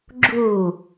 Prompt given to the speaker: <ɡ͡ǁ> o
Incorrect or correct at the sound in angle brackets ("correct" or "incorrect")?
correct